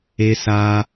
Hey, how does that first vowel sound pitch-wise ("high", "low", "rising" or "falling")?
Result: high